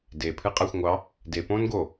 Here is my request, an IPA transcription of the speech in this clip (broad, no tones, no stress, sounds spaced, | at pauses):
d e pʰ ɨ qʼ a xʷ ŋʷ ɑ | d e p õː n ɡ o